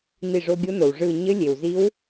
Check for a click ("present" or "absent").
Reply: absent